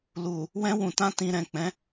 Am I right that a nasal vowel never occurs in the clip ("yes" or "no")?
no